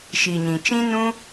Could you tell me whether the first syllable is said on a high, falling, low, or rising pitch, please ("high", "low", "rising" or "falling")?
low